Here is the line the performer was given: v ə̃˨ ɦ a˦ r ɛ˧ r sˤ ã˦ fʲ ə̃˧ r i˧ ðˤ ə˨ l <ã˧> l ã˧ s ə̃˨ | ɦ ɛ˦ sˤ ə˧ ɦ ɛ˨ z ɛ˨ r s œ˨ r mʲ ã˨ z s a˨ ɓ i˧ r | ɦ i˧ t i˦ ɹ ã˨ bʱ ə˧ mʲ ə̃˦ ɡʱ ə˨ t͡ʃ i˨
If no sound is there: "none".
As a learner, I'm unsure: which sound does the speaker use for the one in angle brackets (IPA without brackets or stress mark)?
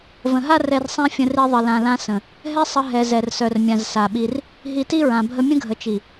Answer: ã˨